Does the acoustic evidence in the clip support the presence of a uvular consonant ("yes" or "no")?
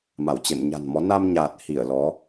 no